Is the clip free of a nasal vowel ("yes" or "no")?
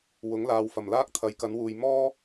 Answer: yes